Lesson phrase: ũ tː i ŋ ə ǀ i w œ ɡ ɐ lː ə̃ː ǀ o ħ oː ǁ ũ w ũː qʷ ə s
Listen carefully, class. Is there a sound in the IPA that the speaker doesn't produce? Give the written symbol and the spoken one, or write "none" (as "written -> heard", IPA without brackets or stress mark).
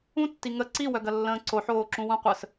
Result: ũː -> ũ